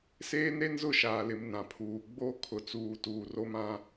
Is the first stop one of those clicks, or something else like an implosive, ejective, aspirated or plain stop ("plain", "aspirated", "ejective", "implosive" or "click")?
aspirated